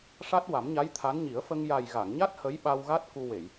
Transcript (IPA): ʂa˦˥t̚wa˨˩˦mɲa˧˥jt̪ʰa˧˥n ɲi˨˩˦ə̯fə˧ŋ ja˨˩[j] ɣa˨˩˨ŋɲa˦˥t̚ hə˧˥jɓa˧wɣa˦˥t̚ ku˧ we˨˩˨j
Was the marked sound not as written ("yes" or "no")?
no